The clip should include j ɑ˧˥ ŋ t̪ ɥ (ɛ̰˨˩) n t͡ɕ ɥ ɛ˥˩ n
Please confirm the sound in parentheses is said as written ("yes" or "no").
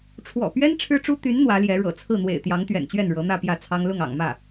yes